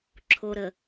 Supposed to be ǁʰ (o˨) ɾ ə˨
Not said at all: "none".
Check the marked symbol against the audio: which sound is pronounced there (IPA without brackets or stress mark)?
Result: o˨